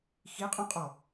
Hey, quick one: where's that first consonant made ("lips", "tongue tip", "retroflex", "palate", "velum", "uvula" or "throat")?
velum